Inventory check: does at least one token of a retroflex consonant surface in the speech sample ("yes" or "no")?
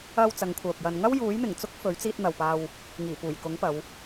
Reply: no